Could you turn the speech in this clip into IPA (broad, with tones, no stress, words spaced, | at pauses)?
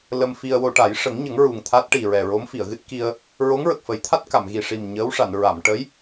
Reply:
lə˧mfi˧ə̯wo˧ ʈa˨˩˦j ʂə˨˩˦ŋɲə˨˩˦ŋ ɹu˨˩ŋt̪ʰa˦˥t̚ ʈi˨˩ɹɛ˨˩ɹo˧˥mfi˨˩˨ə̯ ɣɨ˦˥t̚ki˧ə̯ | ɹo˧˥ŋɹə˨˩k̚fə˨˩˦jt̪ʰa˦˥t̚ ka˨˩˨mɣi˨˩ʂi˨˩m ɲəː˧˥wʂa˨˩˨n ɹa˨˩˨mʈə˧˥j